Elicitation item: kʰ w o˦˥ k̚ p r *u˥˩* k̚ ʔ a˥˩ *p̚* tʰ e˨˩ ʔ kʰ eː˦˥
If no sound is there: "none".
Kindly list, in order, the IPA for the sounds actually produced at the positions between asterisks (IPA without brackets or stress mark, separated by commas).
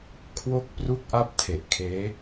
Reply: u˥˩, p̚